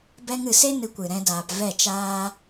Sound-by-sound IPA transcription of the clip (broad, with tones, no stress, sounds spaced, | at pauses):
b ɛ˧ ŋ ɨ˨ s e˦ n ɨ˧ kʷ ɨ˨ ɾ ɛ̃˧ d aː˨ p v ɛ˦˨ t͡ʃ aː˦